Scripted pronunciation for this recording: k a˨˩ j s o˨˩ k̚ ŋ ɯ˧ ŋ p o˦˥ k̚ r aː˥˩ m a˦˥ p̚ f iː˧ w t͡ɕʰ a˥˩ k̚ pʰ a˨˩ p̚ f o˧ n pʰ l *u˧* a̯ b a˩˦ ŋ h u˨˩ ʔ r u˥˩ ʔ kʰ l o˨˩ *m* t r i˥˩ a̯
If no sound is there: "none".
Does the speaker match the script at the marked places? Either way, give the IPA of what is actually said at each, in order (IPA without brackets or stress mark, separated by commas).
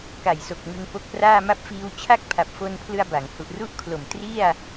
ɯ˧, m